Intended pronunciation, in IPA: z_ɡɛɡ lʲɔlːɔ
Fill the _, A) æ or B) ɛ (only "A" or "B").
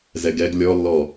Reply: B